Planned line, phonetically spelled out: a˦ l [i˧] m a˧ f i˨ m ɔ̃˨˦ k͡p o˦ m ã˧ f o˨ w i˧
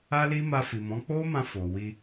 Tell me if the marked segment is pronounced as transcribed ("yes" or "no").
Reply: no